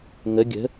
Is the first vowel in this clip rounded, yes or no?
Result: no